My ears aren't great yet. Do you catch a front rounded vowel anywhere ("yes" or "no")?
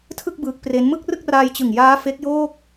no